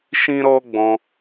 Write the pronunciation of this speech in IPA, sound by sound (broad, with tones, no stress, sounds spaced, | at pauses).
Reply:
ʃ ĩ˦ ɾ ɔ˦ ɡ͡b ɔ̃˧